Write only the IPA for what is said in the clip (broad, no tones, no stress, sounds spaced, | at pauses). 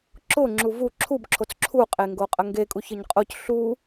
ǁ ʊ ŋ͡ǁ u v u ǁʰ u b ǁʰ o t͡s ǁʰ u qʼ e ŋ ɡ o qʼ ə ŋ ɡ e kʼ u ç ə ɲ qʼ o c ɬ u